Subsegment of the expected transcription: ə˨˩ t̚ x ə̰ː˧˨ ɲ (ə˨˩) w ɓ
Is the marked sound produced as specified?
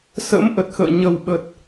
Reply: yes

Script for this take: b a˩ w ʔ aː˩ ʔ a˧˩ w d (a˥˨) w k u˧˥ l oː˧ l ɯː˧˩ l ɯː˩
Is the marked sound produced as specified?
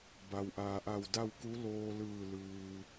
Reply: yes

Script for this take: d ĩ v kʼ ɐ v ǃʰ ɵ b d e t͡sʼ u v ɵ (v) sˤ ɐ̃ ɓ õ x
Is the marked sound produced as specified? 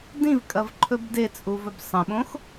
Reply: no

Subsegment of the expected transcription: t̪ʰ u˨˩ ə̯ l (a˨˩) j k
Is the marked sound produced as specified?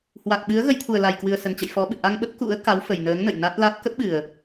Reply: yes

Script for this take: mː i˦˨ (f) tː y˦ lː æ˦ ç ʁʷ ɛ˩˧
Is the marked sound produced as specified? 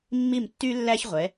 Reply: no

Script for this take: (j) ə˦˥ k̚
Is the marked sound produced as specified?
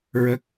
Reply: no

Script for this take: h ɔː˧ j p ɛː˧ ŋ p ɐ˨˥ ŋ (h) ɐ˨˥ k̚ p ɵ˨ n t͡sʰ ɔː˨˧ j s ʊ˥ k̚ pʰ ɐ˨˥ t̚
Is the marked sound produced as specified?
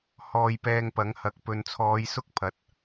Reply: yes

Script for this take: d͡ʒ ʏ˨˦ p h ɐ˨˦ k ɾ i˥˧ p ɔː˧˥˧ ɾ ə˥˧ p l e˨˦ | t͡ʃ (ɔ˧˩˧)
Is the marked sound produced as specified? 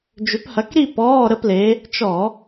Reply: yes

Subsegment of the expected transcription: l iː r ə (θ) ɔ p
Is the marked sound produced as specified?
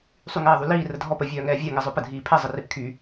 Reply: no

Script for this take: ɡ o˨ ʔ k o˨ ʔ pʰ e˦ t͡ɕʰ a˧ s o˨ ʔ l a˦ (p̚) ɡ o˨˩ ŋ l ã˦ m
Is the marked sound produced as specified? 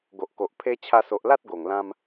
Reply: no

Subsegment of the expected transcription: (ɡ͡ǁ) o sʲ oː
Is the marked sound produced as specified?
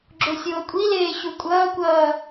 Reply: yes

